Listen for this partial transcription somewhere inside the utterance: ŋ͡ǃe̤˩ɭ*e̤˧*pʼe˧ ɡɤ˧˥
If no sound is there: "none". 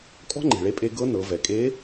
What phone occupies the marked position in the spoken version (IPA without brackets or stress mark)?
e˧